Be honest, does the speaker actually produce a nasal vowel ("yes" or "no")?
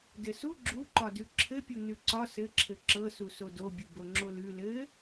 no